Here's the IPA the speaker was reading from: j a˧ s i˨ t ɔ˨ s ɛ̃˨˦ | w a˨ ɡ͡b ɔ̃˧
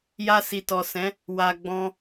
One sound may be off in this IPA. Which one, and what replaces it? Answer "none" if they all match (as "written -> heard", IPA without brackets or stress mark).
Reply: none